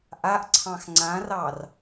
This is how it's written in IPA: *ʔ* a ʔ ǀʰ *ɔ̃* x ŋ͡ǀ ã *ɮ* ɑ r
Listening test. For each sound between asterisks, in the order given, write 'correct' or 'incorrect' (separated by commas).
correct, incorrect, incorrect